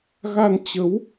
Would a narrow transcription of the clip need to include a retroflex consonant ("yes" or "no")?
no